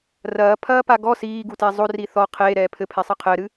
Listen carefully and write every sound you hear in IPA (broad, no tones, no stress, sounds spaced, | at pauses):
r ɐː pʰ ɐː p a ɡ ɔ s iː ɡ u t e zˤ o r i θ ɔ qʰ eː ɾ ɛː pʰ ɘ pʰ e sˤ ɘ qʰ ɘː ɾ ɨ